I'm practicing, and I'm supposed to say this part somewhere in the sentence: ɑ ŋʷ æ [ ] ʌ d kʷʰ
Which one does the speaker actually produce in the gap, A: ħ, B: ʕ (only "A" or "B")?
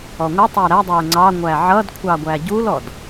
B